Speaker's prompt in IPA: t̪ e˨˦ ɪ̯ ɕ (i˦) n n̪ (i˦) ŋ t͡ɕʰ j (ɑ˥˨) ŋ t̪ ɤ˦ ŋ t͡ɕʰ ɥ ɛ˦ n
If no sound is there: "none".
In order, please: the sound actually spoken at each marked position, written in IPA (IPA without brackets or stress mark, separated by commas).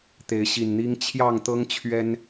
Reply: i˨˩, i˦, ɑ˥˨